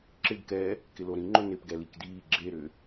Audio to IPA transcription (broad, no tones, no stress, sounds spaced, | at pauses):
ǁ ɪ ɡ k ɛ | k ɪ l o ɾ ĩ ŋ͡ǃ ʊ n ɪ p ɡ ɛ l i k d iː ɡ͡ǁ e ɾ ʏ